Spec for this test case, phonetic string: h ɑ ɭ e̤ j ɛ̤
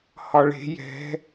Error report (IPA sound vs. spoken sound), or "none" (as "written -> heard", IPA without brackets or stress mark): ɑ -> ɒ